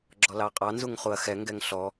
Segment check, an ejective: present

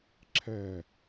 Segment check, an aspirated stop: present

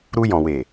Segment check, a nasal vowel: present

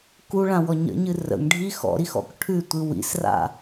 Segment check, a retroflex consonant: present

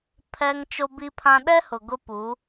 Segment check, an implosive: present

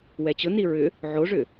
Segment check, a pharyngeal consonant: present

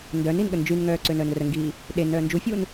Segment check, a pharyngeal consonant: absent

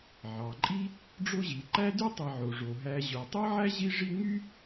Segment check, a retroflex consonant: present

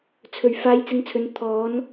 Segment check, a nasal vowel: absent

